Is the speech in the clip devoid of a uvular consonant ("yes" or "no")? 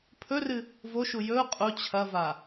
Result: no